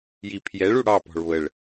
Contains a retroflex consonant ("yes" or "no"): yes